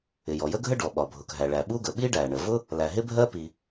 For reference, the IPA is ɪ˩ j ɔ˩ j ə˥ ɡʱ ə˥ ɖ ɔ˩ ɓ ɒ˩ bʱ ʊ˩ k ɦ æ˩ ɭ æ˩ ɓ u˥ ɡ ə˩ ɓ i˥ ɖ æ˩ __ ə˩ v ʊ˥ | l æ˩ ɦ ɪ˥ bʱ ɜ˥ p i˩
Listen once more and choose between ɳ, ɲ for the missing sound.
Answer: ɳ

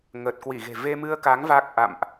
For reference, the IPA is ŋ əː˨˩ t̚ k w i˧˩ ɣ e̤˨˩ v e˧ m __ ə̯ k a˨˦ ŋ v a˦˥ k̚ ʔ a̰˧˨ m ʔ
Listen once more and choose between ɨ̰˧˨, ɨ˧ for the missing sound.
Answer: ɨ˧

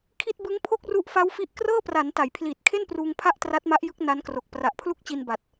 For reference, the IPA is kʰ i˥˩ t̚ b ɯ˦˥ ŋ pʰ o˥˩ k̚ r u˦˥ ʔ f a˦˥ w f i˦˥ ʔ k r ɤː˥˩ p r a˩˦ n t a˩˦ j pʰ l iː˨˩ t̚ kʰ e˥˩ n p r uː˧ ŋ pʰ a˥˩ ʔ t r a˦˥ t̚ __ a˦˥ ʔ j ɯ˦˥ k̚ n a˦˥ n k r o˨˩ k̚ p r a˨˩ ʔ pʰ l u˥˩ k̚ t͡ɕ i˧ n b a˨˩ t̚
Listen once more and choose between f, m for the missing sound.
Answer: m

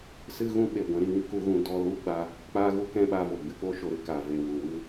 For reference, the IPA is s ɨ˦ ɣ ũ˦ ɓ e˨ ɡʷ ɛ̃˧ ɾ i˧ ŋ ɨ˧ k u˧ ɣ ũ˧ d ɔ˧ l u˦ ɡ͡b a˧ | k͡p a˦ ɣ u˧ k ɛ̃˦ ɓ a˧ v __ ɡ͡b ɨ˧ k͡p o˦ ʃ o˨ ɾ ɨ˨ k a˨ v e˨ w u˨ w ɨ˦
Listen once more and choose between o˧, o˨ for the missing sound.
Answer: o˨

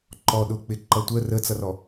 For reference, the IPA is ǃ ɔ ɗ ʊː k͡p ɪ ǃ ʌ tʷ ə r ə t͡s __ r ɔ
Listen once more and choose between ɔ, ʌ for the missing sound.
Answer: ʌ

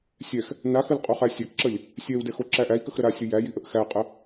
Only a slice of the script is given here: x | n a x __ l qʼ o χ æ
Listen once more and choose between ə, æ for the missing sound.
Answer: ə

